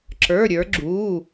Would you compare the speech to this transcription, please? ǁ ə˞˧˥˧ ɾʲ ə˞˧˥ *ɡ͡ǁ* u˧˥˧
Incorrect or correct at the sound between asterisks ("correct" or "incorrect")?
correct